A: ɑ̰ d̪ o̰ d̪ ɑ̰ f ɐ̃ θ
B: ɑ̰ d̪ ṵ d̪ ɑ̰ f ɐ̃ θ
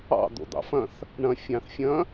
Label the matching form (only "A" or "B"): A